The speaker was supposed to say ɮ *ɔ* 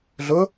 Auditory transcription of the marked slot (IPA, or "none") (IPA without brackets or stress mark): ʊ